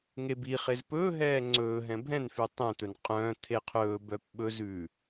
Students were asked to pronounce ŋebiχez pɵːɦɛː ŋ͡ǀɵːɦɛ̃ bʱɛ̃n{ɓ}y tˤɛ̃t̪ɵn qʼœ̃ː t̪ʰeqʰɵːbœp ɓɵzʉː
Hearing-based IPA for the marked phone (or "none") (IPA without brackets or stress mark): f